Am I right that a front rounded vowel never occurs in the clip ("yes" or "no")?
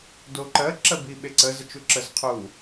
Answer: yes